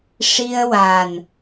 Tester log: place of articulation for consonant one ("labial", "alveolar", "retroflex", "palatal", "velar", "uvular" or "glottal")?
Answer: retroflex